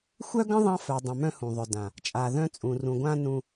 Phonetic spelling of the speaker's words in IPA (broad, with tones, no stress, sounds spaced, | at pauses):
xʷ œ˦ ɡ ə̃˦ ðˤ ɑ̃˦ f œ˨ dˤ ə̃˨ m œ̃˦ h ũ˨ ðˤ œ˨ d ã˨ | t͡ʃʼ a˨ ð œ̃˦ t͡sʼ ũ˨ r ũ˨ ɡʷ ã˦ n ũ˨